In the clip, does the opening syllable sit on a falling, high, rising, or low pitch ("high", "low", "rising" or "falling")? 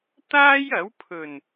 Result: high